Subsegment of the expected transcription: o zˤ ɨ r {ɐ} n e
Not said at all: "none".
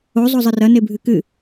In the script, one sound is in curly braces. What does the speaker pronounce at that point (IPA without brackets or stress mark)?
ɐ